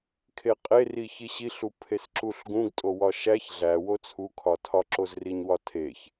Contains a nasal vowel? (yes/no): yes